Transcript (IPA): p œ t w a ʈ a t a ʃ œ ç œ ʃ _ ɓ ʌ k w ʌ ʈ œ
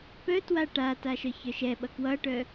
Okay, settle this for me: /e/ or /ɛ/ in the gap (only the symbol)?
ɛ